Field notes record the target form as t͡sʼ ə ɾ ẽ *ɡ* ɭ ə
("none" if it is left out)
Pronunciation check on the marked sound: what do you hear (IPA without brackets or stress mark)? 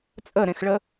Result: x